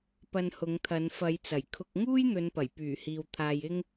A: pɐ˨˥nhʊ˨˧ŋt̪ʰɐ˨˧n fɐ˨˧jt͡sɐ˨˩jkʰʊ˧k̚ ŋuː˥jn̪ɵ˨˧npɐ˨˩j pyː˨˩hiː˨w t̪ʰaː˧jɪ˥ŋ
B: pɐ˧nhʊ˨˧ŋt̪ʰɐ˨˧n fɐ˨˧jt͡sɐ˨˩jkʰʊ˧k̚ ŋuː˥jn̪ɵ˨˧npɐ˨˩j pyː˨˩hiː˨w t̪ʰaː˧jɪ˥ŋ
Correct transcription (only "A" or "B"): B